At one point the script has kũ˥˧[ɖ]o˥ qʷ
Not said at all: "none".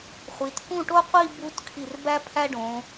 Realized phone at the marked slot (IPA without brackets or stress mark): ʈ